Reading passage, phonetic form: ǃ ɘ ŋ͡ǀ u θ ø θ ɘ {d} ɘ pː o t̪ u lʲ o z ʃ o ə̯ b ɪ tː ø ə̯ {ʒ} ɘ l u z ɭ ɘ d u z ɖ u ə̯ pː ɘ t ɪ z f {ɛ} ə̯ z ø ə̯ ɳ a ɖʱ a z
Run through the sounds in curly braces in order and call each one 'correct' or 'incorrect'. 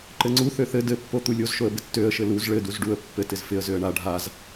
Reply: correct, incorrect, incorrect

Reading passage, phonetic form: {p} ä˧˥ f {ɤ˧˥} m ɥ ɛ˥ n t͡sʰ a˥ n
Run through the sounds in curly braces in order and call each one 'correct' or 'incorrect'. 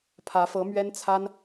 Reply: incorrect, correct

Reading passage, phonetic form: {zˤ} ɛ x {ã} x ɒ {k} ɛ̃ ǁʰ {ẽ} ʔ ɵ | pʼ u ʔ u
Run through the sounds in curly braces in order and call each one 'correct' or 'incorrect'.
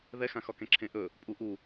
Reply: incorrect, correct, correct, correct

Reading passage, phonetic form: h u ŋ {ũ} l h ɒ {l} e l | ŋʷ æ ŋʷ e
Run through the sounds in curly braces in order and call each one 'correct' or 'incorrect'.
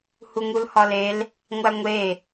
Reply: incorrect, correct

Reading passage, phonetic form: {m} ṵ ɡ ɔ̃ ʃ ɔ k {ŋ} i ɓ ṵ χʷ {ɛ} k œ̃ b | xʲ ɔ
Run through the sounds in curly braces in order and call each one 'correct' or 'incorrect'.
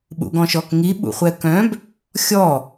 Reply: incorrect, correct, correct

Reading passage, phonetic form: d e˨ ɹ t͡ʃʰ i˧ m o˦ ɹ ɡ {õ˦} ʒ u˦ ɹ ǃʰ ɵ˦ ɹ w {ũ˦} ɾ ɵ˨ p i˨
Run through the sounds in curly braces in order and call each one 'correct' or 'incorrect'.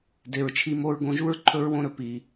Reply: incorrect, incorrect

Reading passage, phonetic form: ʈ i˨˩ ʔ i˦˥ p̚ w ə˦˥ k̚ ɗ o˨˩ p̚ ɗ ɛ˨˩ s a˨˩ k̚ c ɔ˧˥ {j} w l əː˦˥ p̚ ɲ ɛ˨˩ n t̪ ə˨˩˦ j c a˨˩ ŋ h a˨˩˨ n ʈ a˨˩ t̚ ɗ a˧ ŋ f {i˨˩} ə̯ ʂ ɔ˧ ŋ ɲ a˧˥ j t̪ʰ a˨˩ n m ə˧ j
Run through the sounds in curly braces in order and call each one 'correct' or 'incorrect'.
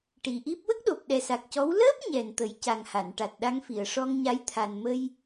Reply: incorrect, incorrect

